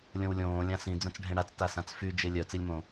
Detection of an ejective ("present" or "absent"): absent